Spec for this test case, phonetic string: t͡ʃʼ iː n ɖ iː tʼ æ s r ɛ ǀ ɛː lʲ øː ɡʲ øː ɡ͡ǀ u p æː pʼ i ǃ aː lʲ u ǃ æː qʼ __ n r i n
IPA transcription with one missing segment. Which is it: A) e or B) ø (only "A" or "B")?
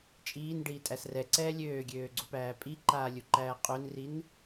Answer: B